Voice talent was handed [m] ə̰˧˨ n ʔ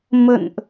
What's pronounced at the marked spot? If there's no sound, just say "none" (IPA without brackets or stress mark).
m